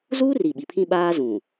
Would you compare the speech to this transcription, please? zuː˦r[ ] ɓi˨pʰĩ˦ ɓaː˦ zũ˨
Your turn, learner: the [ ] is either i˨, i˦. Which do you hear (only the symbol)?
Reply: i˨